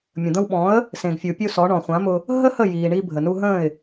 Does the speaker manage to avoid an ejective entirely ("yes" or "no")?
yes